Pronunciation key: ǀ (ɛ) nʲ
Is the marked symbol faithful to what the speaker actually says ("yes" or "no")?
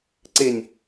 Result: no